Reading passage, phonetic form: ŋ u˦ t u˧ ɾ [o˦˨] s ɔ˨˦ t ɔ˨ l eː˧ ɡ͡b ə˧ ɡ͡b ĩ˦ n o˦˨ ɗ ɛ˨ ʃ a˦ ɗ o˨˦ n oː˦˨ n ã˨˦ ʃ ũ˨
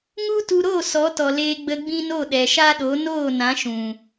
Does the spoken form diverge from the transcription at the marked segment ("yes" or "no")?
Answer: no